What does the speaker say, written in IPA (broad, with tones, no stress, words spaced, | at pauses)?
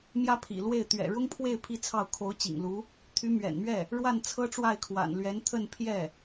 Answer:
mjä˥pʰḭ˨˩lwe˥˩ɪ̯ t̪ɥɛ̰˨˩ɻʊ˥ŋpʰwe˥˧ɪ̯ pʰi˥˧t͡sʰɑ˥˩ʊ̯ kʰo˧˥ʊ̯t͡ɕḭ˨˩ŋlu˧˥ | t̪ʰy˧˥mɥɛ̰˨˩nmɥɛ˥˩ | ɻwa˥˩nt͡sʰɤ˥ʈ͡ʂwa˥˩ɪ̯kʰwa̰˨˩n lɥɛ˧˥nt̪ʰə˥˧npʰjɛ˥˩